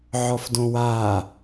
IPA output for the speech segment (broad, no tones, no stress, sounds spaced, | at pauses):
ʕ ɔ f d õ w aː